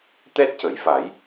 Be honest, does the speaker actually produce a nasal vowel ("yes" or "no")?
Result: no